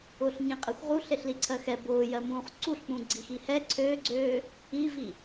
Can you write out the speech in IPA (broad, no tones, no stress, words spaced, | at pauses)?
ʊːɬɲĩqʼexʷ ʁuɬ eɬliǀʰɜxɛ bʊːjɜmũːχ ǀuɬk͡pũ ɡ͡ǀixihɛ ǀʰøɡ͡ǀøː | ivi